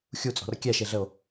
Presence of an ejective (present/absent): present